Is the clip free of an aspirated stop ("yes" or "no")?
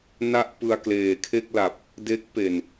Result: no